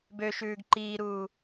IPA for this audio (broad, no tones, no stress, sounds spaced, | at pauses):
b ø ʃ ʉː ɡ ǃ iː ɾ uː